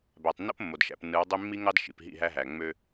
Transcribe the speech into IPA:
bæ˨tˤnːo̰˦p mːo˨dʃæ̰˨pnːɯ˨˦wdˤy˦ mːi˦ŋɑ˦d ʃḭ˨pɦḭ˦˨ɦæ˦ɦæ˨ ŋ͡mø˦

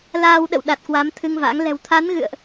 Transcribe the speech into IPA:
laː˧wɗə̰˧˨w ɗa˨˩t̚kwaː˨˦mt̪ʰɨ˧ŋva̰ː˧˥ŋ lɛ̤˨˩wt̪ʰa˨˦nɣɨ̰˧˨ə̯ʔ

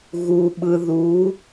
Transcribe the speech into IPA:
ɣu˧ɓɯ˧ðu˧˥

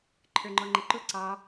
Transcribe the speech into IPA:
ǃʰə˞ŋ͡ǃɔŋ͡ǃəǃʊ ǀɑ

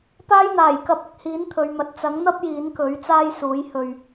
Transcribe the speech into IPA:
paː˥jn̪aː˨˩jkɐ˧p̚ ɪ˧k̚ hiː˨˥nt̪ʰɵ˨ɥmɐ˨˥t̚ t͡sɐ˨˥ŋn̪ɐ˥p̚ jiː˨˥nkɵ˨˥ɥt͡saː˥j suː˨˥jhɵ˧ɥ

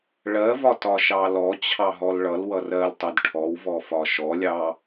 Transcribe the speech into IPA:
ɭɜvɒ tɒʃɑlɔ t͡ɕʰɑɦɔlɭʌl wʌrɜltˤɜd ʈʰɔwvɔ fɒʃɔlʲɑ

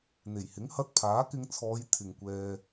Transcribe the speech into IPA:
n̪e˨˩jhɪ˨˥ŋhɐ˧t̚ pʰaː˨˥kɪ˧ŋt͡sʰɔː˨˧j t̪ʰɪ˨ŋkʷɛː˧

